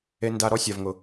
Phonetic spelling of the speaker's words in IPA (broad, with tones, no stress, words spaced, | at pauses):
e˨nda˨ɾɔ˧ sʲa˨vŋʊ˨